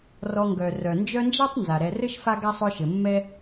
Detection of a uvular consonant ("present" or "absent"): absent